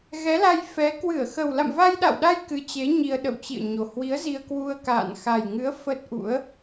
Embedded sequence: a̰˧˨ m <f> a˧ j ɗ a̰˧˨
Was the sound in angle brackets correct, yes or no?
no